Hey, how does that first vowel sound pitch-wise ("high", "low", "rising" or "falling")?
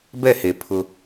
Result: falling